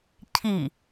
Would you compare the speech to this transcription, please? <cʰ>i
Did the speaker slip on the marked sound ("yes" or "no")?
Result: no